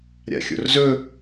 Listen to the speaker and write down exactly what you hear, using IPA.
ɾʲa̰xʲo̰rzɵ

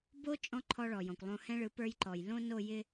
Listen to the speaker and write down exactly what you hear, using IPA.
bo˦ t͡ʃʼɔ̃˦ ǃʰɔ˦ɭɔ˨ jɔ̃˨kʷlˠõ˦ hɛ̃˦ɭɯ˨˦ pə˞˦jǃɔ˨j lõ˦no˦˨jɪ˦

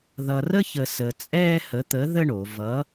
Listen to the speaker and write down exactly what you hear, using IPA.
ðʌ˧rə˥çə˧ səː˧t͡sʼɛː˥ hə˧˥t̪ə˧˥ ðə˥ɳo˩˧vʌ˧˥

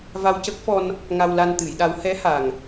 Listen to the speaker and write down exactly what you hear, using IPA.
va˧wcə˦˥k̚fɔ˧n | ŋa˧wla˧nt̪ɨ˨˩˦jɗa˧˥w hɛ˧˥ha˨˩ŋ

